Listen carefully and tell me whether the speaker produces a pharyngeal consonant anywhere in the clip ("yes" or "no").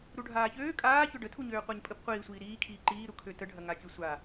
no